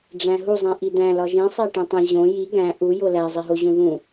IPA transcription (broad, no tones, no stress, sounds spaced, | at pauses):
ɖ͡ʐ æ̃ ɦ u zˤ ĩ ʔ i d̪ æ̃ l ɒ ʒ ĩ sˤ æ ʈ ĩ tˤ ĩ ʑ õ j i ɡ æ̃ ʔ u j o l æ zˤ e ɦ o ʑ ũ ð ũ